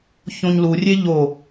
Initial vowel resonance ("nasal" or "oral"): nasal